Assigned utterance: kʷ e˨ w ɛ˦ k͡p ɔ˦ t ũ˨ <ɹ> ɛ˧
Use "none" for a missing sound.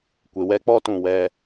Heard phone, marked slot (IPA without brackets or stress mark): w